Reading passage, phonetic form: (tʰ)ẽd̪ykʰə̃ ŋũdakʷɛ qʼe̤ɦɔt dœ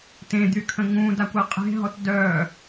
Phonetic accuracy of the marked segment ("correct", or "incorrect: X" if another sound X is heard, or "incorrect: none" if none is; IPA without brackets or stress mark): incorrect: t